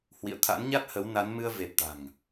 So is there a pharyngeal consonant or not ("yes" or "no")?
no